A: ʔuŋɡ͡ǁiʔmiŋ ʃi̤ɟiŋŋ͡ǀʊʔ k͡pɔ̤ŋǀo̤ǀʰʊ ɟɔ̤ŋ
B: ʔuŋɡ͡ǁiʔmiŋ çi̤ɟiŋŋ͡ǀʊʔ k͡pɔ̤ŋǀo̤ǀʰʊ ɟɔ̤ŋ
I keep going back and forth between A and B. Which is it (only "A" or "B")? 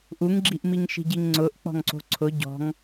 A